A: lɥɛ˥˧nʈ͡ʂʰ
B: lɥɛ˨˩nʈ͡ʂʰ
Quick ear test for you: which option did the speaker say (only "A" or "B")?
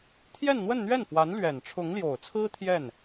B